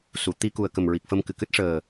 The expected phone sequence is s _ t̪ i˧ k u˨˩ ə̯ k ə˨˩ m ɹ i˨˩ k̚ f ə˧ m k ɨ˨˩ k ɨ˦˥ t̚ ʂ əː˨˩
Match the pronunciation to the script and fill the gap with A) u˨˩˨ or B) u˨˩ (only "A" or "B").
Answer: A